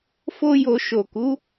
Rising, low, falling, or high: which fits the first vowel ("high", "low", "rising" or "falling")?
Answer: high